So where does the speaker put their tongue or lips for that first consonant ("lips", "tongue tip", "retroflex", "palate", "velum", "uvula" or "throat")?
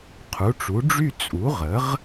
uvula